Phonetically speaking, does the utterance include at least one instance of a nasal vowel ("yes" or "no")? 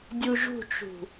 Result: no